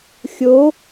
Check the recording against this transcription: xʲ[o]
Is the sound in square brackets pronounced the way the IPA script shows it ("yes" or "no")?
yes